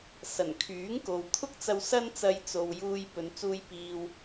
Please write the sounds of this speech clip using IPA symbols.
s ɐ˨˩ n kʰ yː˨˥ ŋ k o˨ w t̪ʰ ʊ˥ k̚ t͡s ɐ˧ w s ɐ˥ n t͡s ɐ˧ j t͡s o˨ w j uː˧ j p ɵ˨˧ n t͡s uː˧ j p iː˨ w

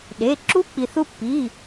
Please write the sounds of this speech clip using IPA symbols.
ɗ e˩˧˩ ǁ u˧˥ k͡p i˩ θ u˧ pː i˩˧˩

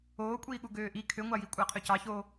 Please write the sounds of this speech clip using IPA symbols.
oː kʷʼ iː ɠ u ɡ øː ʔ i kʰ ø ŋʷ ɑ j i kʷʼ æ qʰ ø c ɑ ç oː

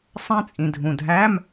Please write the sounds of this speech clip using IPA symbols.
sˤ æ̃˥ t͡sʼ ĩ˩ dʱ ũ˩ dʱ æ˧˥˧ m

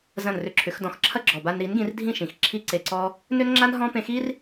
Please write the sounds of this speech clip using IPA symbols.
z ɐ̃˦˨ n r ʏ˧ ǁʰ ʏ˨˦ x d ɔ̃˧ x ǁʰ ɐ˦ ɡ͡ǁ ɔ˨ b a˧ n ɾ i˨˦ n ɡ ĩ˧ r dʱ ĩ˦˨ ʃ ĩ˨ x ǁʰ i˦ ǀ e˧ ǀ ɔ˦ | n ʏ˦ n ŋ͡ǁ a˦ n ɦ ɔ̃˦ p ẽ˧ x i˦ r

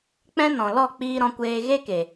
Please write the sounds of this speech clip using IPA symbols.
k͡p ɛ̃˧ n ɔ̃˨ l ɔ˦˨ k͡p iː˦ ɾ ɔ̃˧ kʷ eː˧ ɣ e˦ k e˨

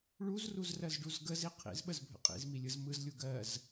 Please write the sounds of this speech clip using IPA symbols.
ɭ u z r u z r ɜ z ɖ u z ɡ ə z i qʰ ḭ z ɓ ə z bʱ ə̰ qʼ ḭ z m i lʲ ɯ z m ɯ z lʲ u ɡ ɜ z

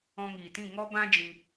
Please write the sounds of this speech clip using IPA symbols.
ɔ̃˧ ŋ iː˨ t ĩ˦˨ ŋ ɔ˦ b ã˦ d͡ʒ ĩ˧

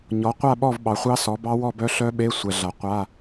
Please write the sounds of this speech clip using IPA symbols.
ɲ ɔ˩˥ qʷ a˥˨ ɓ ɔ˥˨ v ɓ ɑ˩˥ χʷ ɑ˦˥ s ɔ˩˥ b ɑ˦˥ w ɔ˥˨ b œ˦˥ ɬ œ˦˥ ɓ e˧˥˧ sʷ ɛ˨ ɮ a˨ qʷ a˧˥˧

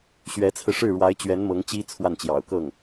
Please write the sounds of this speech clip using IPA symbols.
ɕ ɥ ɛ˧˥ t͡sʰ ɹ̩˧ ʂ ɻ̩˥˩ ɻ w a˧˥ ɪ̯ t͡ɕ ɥ ɛ˧˥ n m ɤ˧˥ ŋ t͡ɕ i˥ t͡sʰ w a˥˩ n t͡ɕ j ɑ̰˨˩ ʊ̯ k ɤ˥˩ ŋ

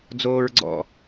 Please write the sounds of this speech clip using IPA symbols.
d͡z oː ɹ ɡ͡ǀ ɔ̰

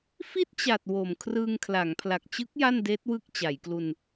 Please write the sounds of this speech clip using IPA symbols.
f i˥˩ t̚ t͡ɕ a˨˩ t̚ w o˨˩ m kʰ r ɯː˧ ŋ kʰ l a˩˦ ŋ pʰ l a˨˩ k̚ t͡ɕ ɯ˦˥ k̚ j a˥˩ n d eː˦˥ t̚ w ɯ˥˩ k̚ t͡ɕ a˩˦ j k l u˧ n

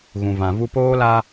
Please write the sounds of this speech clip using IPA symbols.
ɣ ũ˨ v ã˨ v u˦ p oː˦ l a˦

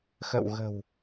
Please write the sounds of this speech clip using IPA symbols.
x ə̰˧˨ w ɣ ə̤˨˩ w

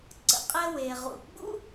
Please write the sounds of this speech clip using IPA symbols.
ǀ ə̰˩ qʼ ɛ˧ w e˩ ʁ ṵ˩ ɡ͡b ṵ˥

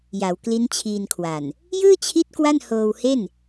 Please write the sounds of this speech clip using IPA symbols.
j a˩˦ w k l i˦˥ n t͡ɕʰ iː˧ n kʰ w a˨˩ n | j ɯː˥˩ t͡ɕʰ i˦˥ t̚ k w a˥˩ n h oː˧ w h e˥˩ n

